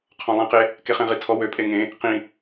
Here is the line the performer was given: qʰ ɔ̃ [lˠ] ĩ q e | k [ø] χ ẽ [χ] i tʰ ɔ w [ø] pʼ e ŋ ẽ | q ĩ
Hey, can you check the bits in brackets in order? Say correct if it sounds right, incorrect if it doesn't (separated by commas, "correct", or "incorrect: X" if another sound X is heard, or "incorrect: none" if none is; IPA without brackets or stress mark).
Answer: correct, incorrect: e, incorrect: ʁ, correct